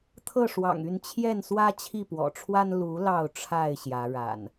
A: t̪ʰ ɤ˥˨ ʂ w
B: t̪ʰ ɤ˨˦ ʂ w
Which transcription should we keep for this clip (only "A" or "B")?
A